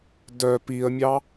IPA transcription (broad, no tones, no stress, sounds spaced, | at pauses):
d œ p i ə̯ mʲ ɑ